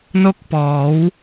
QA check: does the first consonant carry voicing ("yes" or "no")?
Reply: yes